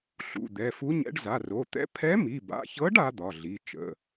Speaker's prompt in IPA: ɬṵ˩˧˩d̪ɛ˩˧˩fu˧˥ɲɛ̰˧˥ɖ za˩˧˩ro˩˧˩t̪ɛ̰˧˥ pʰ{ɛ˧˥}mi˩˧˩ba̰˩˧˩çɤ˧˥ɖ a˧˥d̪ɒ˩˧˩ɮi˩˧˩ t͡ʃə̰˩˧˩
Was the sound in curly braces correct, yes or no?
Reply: yes